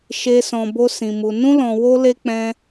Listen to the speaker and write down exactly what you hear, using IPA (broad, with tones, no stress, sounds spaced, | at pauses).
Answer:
ʃ e˧ s ɔ̃˧ b o˦ s ĩ˧ m u˧ n ũ˦ l ɔ̃˧ w o˦ l e˦ k͡p ɛ̃˦